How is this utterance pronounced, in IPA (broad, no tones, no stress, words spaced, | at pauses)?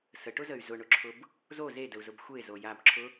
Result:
səʈʊzəy̯ zʊɳʊǁʰʊb | zo zedəu̯zʊb xʷe zojabǁʰʊ